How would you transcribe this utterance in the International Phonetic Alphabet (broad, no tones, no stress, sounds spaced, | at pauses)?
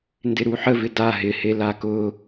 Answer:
n d ɪ ɾ u ħ ə v ɪ d a ɦ ɪ h e l a k ʊ